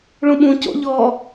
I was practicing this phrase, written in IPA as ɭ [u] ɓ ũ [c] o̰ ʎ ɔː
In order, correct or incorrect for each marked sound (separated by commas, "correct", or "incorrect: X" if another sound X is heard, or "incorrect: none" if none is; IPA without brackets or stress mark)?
incorrect: ũ, correct